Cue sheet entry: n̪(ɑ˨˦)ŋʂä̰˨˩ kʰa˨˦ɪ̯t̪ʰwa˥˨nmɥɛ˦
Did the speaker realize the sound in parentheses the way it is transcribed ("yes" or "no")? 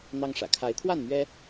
no